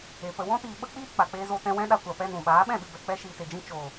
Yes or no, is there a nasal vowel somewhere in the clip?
yes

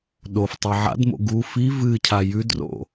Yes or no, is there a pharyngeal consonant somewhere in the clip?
yes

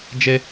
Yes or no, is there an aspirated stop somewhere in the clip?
no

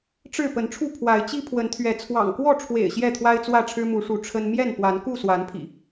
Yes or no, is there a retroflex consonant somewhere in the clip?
yes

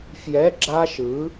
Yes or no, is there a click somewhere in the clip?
yes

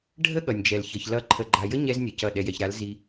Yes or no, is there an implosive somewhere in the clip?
yes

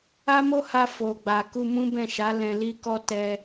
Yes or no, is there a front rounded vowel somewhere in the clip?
no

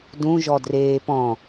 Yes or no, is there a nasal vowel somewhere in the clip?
yes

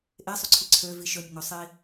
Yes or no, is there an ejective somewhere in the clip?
no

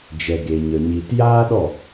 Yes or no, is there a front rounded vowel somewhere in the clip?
no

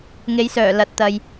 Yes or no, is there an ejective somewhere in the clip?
no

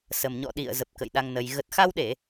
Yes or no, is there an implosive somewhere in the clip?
yes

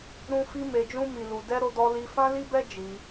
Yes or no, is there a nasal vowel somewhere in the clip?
yes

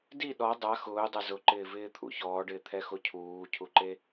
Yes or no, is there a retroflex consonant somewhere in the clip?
yes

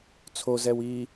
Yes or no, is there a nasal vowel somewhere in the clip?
no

